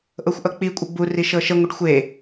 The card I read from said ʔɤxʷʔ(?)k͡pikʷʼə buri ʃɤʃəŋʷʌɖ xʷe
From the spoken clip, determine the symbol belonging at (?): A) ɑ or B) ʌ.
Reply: B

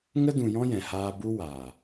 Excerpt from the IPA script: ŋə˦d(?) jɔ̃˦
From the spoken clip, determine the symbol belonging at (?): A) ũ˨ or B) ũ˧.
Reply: A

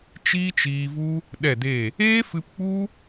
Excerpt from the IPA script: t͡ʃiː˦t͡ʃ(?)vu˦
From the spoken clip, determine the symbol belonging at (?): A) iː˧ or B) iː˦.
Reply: A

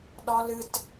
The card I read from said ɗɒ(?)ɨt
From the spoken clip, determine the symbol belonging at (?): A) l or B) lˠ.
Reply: A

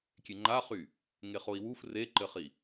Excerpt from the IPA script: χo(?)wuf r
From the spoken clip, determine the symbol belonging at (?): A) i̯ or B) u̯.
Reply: A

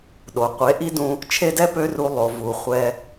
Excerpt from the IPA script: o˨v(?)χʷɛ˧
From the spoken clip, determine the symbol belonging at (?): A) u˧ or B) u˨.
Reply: B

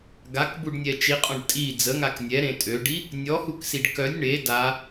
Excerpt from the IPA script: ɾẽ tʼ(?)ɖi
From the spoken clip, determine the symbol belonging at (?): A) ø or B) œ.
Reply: A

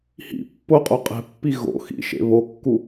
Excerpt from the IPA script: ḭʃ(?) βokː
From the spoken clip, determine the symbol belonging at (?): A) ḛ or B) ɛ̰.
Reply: A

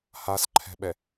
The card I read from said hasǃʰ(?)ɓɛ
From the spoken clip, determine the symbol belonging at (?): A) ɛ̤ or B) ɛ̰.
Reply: A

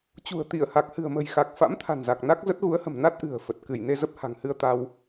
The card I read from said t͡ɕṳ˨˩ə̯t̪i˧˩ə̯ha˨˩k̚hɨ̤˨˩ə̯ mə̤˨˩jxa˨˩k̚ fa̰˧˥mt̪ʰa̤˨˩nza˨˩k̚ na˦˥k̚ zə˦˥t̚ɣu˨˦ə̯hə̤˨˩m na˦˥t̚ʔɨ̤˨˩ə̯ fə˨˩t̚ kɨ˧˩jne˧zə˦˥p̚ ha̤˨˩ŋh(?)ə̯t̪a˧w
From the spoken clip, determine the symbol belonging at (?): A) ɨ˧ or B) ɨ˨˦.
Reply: A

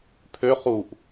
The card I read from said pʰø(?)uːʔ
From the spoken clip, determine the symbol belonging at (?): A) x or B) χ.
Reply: B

